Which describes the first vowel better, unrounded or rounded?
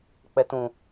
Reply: unrounded